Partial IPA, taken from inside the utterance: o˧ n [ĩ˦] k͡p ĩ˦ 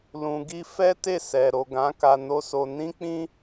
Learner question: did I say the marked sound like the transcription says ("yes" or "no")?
yes